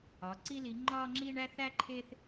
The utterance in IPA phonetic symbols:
ɒ˨˦ ǀ i˦ l i˨˦ ŋ͡ǃ ɒ˦ ŋ͡ǁ i˦ ɳ æ˦ θ æ˦ ǃʰ e˦ θ

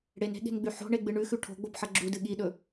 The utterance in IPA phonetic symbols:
ɽ e n e̤ ɠ e̤ n ɡ͡b ʉ ħ o̤ ɳ e ɡ͡b ɨ ɳ ʉ x ʉ ʈʰ o̤ ɡ͡b o b ħ ɐ ɡ͡ǁ u d ɨ ɠ i ɗ ɵ

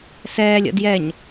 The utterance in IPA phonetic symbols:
s ɛː lʲ ə̰ d j ɛ ɲ

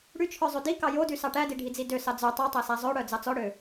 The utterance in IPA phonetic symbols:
ɽ y t͡ʃʰ œ zˤ ʉ d i k ɑ j o d y s ɑ ʈ æ d i ɖʱ i d͡z i d ø s ɑ d͡z œ tˤ œ tˤ æ s æ zˤ ø ɽ œ d͡z ɑ t͡s ɔ ɽ ø

